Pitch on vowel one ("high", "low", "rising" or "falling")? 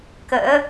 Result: rising